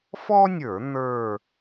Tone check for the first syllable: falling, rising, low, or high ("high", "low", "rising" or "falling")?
high